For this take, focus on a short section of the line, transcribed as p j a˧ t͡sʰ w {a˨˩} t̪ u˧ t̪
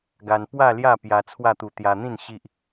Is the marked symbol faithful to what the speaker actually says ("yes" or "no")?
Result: no